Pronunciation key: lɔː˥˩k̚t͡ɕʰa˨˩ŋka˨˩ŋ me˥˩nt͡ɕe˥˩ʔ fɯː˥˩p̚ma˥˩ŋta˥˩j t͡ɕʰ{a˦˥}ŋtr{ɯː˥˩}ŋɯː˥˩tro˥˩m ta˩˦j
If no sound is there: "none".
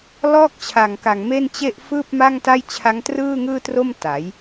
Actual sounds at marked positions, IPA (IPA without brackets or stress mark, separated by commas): a˦˥, ɯː˥˩